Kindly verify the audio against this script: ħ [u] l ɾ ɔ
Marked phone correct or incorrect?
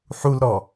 correct